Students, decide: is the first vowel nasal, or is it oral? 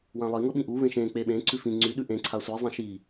nasal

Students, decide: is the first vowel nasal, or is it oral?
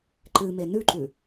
oral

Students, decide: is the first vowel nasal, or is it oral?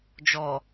oral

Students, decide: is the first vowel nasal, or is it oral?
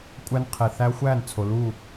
oral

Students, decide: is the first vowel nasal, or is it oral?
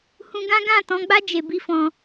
nasal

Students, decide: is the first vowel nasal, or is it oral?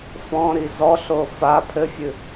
nasal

